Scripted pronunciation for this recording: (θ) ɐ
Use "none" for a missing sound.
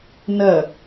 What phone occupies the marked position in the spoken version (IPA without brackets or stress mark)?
n